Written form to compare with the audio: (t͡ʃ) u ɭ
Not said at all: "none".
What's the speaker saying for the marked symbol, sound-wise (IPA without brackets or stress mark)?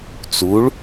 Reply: t͡s